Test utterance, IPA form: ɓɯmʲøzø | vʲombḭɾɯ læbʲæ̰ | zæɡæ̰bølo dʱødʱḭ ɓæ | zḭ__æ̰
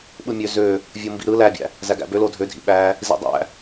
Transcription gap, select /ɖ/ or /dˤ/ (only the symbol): dˤ